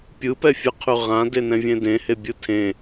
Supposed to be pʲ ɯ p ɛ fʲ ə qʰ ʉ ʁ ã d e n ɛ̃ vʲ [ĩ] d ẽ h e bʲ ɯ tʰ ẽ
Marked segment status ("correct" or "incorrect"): incorrect